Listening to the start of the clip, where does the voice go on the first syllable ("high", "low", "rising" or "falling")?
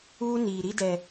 high